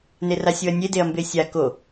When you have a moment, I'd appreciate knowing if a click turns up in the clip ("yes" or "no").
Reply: no